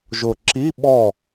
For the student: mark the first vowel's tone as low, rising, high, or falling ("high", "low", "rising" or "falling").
low